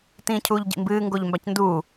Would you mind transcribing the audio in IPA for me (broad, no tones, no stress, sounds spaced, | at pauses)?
t ĩː cʰ uː ʎ ɟ ḭ m b ɨː ŋ ɡ o ʎ m b a c n d uː